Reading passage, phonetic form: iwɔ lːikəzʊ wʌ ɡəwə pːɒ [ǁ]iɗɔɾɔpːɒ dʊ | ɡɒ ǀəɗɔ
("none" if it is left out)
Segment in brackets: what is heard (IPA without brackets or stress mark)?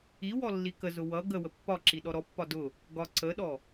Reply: ǁ